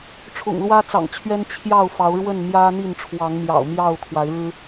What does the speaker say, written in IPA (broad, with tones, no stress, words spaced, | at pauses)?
ʈ͡ʂʰʊ̰˨˩ŋlwä˦t͡sɑ̰˨˩ŋt͡ɕʰɥɛ˦n t͡ɕʰjɑ˥˨ʊ̯fɑ˨˦ʊ̯ ɻwə˥˨nmjä˦n̪i˥˨n ʈ͡ʂʰwɑ˨˦ŋmjɑ̰˨˩ʊ̯ mjɑ˥˨ʊ̯t̪ʰwa˨˦ɪ̯ɻɻ̩˦